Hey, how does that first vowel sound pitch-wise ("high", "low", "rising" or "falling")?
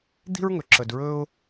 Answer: high